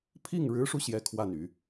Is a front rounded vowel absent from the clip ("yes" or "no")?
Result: no